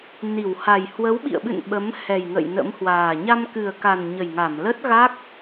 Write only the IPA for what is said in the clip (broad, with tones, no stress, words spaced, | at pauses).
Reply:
ni˧˩wha˨˩j hwə˨˦wɓḭ˧˨ə̯ɓɨ̰˧˨n ɓə˨˦mhɛ˨˩jŋə̰˧˨j nə̰˧˥mhwaː˨˩ ɲa˧mkɨ˨˩ə̯ka˨˩n ɲə˨˩jŋa˧˩m lə˦˥t̚ɣa˦˥k̚